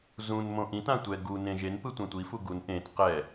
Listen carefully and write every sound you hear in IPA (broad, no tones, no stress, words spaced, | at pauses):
zũn mõʔĩtã tʷɛ ɡu nẽʒenpɯ tʷãtʷifu ɡun ʔẽt qɛ